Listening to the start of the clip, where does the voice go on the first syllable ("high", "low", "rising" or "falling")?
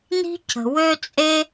high